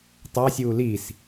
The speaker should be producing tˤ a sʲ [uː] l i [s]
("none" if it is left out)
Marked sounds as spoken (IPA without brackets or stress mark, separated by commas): uː, s